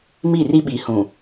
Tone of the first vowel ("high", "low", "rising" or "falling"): falling